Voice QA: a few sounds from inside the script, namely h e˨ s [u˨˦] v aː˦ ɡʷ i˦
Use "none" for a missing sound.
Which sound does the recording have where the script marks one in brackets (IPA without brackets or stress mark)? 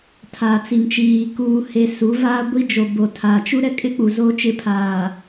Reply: u˨˦